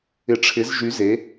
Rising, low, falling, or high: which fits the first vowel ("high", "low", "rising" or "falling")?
rising